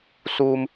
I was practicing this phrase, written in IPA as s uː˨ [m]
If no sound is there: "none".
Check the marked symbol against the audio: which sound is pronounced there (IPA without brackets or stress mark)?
m